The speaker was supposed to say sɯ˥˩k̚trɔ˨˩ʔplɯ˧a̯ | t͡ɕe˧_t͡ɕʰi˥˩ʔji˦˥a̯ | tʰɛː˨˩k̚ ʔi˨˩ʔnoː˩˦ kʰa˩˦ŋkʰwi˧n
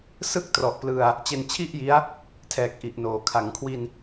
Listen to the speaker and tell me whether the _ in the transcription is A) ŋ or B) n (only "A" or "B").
B